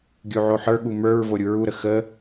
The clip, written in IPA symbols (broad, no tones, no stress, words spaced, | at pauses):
ɡʲuʕoħə˞ ɠumə˞ɹ voɾʲuɹu ɾəxə